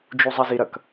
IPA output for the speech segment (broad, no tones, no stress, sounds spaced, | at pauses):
d͡ʒ u zˤ ɐ z i ɾ ɐ k